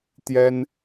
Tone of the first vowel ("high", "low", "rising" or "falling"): high